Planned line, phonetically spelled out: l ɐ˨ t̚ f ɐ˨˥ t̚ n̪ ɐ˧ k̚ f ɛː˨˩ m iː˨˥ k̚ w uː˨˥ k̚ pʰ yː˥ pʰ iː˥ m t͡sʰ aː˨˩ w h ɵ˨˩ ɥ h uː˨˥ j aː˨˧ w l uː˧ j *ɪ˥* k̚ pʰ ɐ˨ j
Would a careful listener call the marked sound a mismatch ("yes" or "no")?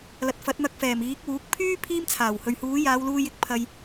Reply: yes